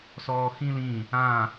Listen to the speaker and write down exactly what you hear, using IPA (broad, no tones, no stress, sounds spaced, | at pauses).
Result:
s ɔː x ĩ l ĩ | ã